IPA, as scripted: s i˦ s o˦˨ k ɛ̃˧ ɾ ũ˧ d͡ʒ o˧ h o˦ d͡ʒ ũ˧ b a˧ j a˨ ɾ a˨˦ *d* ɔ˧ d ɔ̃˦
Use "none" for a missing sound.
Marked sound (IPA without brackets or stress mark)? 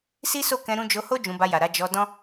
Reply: d͡ʒ